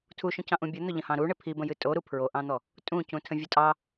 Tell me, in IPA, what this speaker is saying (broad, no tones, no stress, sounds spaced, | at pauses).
tʰ u ʃ õ c ɑ̃ ʔ ũ bʲ ʊ n̪ ʊ ʎ ə̃ h ɑ̃ ɾ u ɳ ɪ pʰ i b ə̃ j ɨ tʼ o ɾ u pʰ ɹ o ʔ ɑ̃ n̪ ɔ | tʼ ũ c ũ tʰ ə̃ vʲ ʊ tʼ ɑ